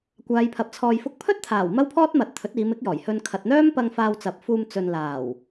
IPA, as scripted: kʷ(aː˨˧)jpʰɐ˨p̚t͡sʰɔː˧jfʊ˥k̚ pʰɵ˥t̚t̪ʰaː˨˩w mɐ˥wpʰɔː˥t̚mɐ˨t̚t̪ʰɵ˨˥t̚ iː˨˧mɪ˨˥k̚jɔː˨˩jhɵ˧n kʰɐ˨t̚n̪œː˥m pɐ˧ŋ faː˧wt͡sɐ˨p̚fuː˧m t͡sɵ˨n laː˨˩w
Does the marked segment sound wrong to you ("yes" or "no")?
no